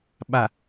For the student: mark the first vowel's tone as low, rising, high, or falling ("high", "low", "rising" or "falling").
low